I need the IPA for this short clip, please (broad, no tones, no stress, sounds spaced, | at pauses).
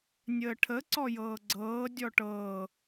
nʲ əː ʈʰ ə ǀ ɔ j ɤː ɡ͡ǀ ɤː dʲ ɔ ʈ ɤː